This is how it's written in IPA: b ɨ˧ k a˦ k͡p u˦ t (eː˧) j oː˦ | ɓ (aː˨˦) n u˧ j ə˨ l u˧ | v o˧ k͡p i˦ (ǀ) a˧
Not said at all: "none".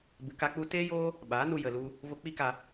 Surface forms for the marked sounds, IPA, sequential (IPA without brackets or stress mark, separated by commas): eː˦, aː˨˦, k